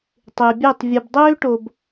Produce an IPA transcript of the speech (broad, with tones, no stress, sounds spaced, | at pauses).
tˤ ɪː˨ bʲ ø˦˨ tˤ vʲ ɯ˨ b dˤ øː˦ ʈ o˨ b